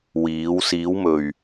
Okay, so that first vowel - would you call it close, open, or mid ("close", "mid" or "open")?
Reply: close